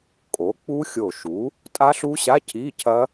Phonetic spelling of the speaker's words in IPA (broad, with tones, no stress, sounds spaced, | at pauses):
kʼ o˩˥ k͡p u˦˥ xʲ o˧˩ ʃ u˩˥ | tʼ a˦˥ ɬ u˦˥ ɕ a˧˥˧ cʰ i˧˥˧ cʰ ɐ˦˥